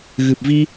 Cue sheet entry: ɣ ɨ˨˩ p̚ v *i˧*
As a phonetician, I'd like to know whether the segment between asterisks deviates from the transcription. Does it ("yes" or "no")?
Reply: no